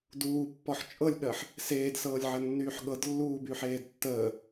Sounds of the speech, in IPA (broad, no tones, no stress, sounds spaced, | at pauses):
d uː pː ɔ ħ t͡ʃʼ ɤ lʲ ɠ ɜ ħ | s eː d s ɤː lʲ ʕ ɜ nː yː ħ ɠ ɤ d lː uː b y ħ eː d tː əː